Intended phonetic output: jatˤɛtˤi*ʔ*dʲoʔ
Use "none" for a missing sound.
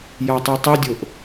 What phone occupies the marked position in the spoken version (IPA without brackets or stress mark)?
none